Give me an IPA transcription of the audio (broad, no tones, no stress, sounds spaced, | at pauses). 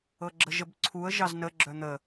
ɤ ɡ͡ǁ ə ʒ ə b ǀʰ u ə̯ ʒ ɑ z n ə ɡ͡ǁ œ n̪ ə